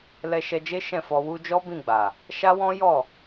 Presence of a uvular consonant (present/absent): absent